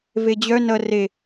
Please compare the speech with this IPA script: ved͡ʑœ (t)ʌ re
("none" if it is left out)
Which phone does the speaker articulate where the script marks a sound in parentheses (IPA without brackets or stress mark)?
n